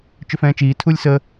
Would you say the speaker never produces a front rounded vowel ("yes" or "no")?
no